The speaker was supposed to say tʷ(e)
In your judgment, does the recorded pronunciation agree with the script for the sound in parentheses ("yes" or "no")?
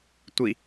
no